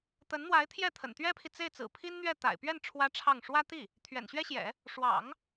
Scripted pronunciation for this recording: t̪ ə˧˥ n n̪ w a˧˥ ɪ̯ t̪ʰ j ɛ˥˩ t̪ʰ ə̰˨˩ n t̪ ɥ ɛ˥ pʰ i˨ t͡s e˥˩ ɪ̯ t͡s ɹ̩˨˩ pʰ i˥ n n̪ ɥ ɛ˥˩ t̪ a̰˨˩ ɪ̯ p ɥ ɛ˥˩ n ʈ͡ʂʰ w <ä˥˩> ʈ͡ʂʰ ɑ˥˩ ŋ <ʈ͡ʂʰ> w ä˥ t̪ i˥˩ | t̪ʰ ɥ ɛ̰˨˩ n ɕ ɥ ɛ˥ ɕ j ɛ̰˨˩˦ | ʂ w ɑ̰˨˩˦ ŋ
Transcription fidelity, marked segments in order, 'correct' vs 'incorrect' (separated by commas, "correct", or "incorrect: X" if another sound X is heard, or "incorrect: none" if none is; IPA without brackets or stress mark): incorrect: ä˥, incorrect: ʂ